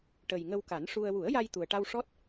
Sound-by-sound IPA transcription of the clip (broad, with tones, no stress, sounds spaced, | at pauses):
ʈ ə˨˩ j ŋ ə˧ w k a˨˩˦ n ʂ u˧ ə̯ w u˨˩˦ ə̯ j a˧ j t̪ u˨˩ ə̯ ʈ a˧ w ʂ ɔ˦˥ t̚